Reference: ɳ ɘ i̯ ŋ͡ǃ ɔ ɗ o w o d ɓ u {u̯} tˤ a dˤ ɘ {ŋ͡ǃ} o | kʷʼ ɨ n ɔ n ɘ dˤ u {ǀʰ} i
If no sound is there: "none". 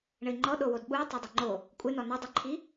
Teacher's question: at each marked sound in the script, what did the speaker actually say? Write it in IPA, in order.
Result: i̯, ŋ͡ǃ, ǃʰ

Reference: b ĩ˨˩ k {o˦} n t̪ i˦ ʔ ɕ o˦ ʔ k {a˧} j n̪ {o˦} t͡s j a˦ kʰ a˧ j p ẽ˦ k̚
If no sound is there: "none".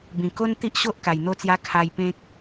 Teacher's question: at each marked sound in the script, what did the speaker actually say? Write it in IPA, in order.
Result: o˦, a˨˩, o˥˧

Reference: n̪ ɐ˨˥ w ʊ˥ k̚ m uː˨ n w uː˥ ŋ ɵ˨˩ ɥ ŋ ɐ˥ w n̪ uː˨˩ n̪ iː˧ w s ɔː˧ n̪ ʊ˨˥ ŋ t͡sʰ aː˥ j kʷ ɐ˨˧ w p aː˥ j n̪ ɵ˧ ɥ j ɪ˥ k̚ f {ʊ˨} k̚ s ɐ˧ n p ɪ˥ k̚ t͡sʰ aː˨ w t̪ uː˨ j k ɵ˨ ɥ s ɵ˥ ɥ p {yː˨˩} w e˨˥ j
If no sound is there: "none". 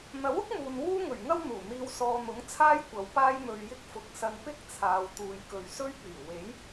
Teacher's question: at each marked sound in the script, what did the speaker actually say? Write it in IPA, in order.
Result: ʊ˨, yː˨˩

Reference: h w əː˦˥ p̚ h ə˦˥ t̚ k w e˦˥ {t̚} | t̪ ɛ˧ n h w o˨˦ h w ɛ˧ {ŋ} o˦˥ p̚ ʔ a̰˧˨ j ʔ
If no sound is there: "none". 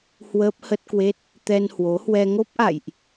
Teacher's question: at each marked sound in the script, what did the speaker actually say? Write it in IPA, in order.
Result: t̚, ŋ

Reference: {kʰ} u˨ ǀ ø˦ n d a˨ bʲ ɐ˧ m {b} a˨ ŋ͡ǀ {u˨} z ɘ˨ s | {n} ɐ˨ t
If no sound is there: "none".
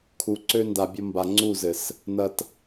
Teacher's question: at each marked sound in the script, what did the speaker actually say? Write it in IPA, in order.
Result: kʰ, b, u˦˨, n

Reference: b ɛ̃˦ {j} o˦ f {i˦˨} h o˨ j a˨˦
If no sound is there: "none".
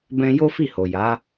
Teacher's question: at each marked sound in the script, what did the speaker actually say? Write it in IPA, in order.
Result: j, i˦˨

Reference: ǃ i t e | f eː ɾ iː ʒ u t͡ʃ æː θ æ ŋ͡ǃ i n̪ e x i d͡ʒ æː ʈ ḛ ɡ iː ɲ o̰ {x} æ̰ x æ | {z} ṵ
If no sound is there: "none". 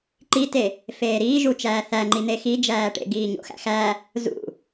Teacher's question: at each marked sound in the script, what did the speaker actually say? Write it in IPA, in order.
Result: x, z

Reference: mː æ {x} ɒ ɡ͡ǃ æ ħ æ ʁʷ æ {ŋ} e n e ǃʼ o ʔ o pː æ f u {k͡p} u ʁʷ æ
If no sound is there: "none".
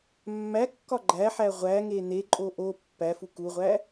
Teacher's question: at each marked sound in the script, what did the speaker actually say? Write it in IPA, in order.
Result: kː, ŋ, k

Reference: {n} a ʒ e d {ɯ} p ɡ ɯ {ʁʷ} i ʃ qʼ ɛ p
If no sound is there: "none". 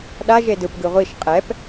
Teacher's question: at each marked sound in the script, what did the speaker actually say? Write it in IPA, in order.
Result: ɗ, ɯ, ʁʷ

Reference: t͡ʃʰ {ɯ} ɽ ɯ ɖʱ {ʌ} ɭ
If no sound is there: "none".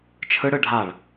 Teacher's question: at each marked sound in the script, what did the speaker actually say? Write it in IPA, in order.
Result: ɯ, a

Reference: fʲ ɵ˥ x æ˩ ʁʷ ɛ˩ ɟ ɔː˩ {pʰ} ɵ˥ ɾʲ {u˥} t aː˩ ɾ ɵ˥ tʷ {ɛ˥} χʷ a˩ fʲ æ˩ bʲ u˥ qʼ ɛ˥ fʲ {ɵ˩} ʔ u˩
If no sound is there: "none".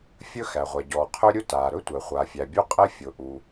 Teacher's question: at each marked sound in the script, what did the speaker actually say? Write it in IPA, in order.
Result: qʰ, u˥, ɛ˩, ʊ˩

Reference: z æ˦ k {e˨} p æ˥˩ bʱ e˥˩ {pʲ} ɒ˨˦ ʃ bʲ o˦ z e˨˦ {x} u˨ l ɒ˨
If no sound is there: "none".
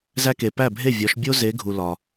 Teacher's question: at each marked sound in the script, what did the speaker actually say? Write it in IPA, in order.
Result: e˨, vʲ, ɡʱ

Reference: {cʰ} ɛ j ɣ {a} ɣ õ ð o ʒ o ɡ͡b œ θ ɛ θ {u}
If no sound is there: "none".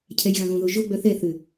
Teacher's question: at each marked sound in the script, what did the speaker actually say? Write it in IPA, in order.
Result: cʰ, ã, ʏ

